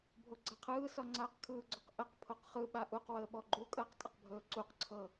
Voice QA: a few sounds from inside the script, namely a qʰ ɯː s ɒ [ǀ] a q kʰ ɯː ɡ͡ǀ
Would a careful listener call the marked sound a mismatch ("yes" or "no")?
yes